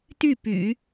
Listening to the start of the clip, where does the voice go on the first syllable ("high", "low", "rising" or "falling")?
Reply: falling